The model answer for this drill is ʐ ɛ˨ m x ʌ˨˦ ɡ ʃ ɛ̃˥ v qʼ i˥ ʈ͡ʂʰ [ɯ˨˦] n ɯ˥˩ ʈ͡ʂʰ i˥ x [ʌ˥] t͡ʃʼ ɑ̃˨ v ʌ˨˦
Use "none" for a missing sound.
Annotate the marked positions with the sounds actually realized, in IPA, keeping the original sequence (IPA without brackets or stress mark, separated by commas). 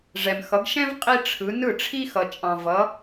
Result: ɯ˨˦, ʌ˨